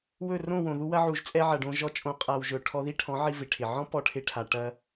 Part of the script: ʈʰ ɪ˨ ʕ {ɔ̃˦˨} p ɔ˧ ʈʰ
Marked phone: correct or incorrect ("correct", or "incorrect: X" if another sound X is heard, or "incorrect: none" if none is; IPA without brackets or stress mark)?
incorrect: ɔ̃˦